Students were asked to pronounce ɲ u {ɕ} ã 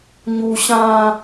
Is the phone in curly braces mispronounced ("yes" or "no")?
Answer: no